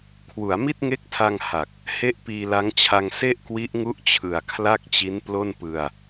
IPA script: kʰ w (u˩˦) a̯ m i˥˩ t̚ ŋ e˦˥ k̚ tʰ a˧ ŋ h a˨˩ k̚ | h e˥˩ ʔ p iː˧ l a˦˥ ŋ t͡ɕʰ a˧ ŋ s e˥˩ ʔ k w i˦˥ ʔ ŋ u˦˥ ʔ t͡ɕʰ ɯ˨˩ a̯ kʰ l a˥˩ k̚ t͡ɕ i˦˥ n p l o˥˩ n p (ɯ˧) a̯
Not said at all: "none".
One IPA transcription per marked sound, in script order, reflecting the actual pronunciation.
u˩˦, ɯ˧

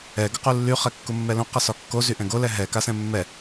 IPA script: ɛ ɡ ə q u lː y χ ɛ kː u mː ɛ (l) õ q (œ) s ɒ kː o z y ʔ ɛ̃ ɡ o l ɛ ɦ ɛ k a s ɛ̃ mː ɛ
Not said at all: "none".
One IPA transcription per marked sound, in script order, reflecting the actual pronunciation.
l, ə

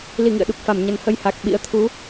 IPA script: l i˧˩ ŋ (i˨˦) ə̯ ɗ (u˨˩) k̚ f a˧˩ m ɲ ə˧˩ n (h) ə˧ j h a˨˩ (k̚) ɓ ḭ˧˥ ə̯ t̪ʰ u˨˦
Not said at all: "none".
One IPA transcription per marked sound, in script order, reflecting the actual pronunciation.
ḭ˧˨, u˨˩, h, k̚

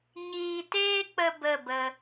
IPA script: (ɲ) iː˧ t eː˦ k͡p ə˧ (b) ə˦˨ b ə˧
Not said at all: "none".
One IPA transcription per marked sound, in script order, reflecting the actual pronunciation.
ɲ, b

